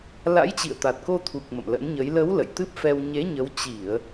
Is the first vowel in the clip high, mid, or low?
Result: low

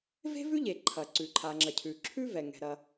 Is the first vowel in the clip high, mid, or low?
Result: mid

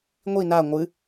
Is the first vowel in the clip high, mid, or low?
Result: high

